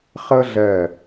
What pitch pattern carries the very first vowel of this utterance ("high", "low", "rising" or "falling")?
high